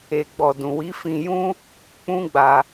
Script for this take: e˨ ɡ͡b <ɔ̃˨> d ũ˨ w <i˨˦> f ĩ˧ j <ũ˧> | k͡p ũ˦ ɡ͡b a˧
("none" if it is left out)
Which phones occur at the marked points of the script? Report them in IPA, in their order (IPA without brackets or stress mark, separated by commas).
ɔ˨, i˨˦, ũ˦